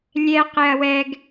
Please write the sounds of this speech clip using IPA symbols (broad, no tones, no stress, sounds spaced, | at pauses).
lʲ ɛ q ɪ ɐ̯ w ɛ ɡ